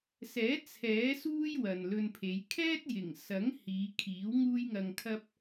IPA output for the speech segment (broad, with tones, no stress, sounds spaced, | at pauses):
s ɛː˨˥ t͡sʰ ɛː˨˥ s uː˥ j w ɐ˨ n l ɵ˧ n pʰ e˨˧ j kʰ ɛː˥ t̚ j ɪ˨˩ ŋ s ɐ˨˥ ŋ h iː˨˧ kʰ iː˨˥ w ŋ uː˥ j ŋ ɐ˧ ŋ kʰ ɐ˥ p̚